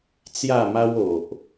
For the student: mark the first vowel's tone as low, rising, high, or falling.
falling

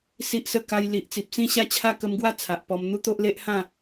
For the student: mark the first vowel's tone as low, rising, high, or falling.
high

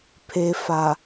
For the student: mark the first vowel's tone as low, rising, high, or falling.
low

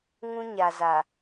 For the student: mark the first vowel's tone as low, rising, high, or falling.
high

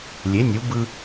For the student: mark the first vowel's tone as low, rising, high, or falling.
rising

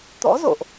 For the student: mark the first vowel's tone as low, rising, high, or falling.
rising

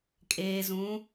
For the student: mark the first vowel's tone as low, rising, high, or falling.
low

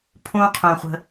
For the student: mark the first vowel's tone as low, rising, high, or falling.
high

